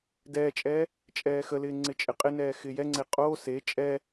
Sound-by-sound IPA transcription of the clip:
d ɛː t͡ʃʼ ɛː | t͡ʃʼ ɛː x ə l ɪː ŋ͡ǀ ɪ t͡ʃʼ ɪ qʼ ɪ n ɛː x ɪː j ɛ ŋ͡ǀ e qʼ oː s e t͡ʃʼ ɛ

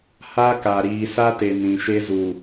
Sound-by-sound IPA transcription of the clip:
h a˦ k a˨ ɾ iː˨ s a˦ t e˨ n ĩ˨ ʃ e˦ z u˨

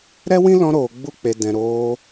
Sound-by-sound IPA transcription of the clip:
ɾ ɛ˦ w ĩ˦ l ɔ̃˧ ɾ oː˨ ɡ͡b u˧ k͡p e˨ d ɛ̃˨ ɾ oː˧

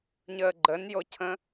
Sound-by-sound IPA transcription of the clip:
ɲ əː ɡ͡ǃ ə n j o cʰ ə̃

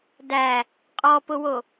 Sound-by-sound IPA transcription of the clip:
d æ | qʼ ɔ p ʊ w o

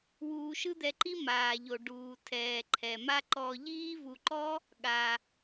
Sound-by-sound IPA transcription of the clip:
w uː˧ ʃ ɯ˦ d̪ ɛ˧ ǃ i˦ m aː˨ ʎ o˨ ɖ uː˨ tʰ ɛː˨ ǃʰ ɛ˨ m a˧ ǃ ɔ˧ ʎ iː˦ v u˧ ǃ ɔ˦ | ɠ a˧

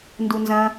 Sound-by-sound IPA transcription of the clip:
n d u n z ɐ̃

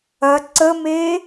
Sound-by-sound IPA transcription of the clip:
ɐ ǀ ə m e

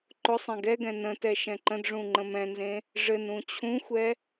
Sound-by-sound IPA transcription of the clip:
ǃ ʊ sˤ ɛ̃ ɡ ɛ ɡ ɛ̃ n ə̃ t ɛ ʃ ɛ̃ ǃ ə̃ d ʐ ũ ŋ͡ǃ ə̃ m ɛ̃ n z ẽ | ʐ ɘ n ũ t͡ɕʰ ũ xʷ ɛ

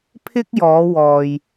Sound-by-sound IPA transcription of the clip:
pʰ ɪ˥ k̚ j ɔː˨˧ w ɔː˨ j

